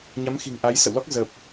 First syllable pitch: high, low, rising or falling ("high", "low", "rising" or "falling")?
rising